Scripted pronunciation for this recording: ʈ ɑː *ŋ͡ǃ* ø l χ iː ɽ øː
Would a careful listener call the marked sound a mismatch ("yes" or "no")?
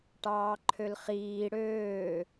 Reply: yes